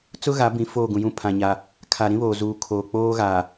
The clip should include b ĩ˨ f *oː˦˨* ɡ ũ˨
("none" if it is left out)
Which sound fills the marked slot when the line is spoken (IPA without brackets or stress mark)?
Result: oː˦˨